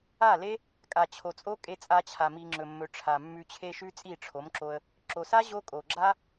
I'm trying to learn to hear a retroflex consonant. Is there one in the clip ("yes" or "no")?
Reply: yes